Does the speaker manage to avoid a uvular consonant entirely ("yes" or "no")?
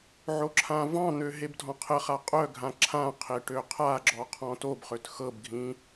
no